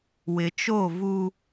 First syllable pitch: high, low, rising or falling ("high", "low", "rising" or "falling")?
low